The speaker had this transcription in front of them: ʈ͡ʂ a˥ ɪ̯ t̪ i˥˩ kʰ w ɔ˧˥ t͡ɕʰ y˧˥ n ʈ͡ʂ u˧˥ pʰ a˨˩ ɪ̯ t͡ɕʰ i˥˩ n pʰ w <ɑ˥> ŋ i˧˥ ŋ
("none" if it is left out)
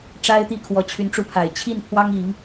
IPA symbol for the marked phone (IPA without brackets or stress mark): ɑ˥